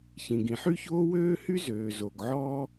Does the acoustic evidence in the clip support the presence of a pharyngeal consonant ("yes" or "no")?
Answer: yes